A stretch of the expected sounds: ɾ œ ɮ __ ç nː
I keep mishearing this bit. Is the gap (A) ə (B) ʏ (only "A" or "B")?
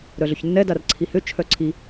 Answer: B